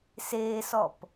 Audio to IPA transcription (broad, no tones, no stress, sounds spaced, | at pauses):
s eː s ɔ p